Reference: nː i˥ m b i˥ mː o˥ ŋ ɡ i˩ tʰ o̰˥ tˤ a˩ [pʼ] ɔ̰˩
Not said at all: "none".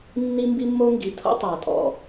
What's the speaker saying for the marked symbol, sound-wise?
tʼ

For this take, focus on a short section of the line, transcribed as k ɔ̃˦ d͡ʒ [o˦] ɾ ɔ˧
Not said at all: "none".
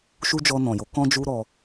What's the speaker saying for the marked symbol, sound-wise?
u˦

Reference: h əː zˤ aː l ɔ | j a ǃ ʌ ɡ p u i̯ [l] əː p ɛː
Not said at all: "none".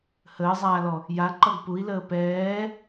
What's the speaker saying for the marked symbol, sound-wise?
l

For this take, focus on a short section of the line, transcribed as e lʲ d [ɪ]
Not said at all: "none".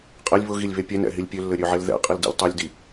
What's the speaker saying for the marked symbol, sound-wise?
i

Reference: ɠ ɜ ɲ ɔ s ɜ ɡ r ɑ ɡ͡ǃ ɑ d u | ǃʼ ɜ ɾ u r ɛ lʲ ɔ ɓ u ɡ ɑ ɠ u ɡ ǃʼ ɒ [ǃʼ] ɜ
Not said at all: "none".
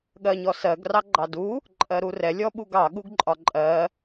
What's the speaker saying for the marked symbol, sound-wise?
ǃʼ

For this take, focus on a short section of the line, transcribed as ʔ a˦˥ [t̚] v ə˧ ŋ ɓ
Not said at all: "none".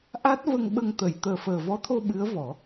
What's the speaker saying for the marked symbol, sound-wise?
t̚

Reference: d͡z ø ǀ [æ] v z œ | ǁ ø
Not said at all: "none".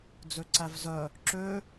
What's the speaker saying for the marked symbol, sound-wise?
æ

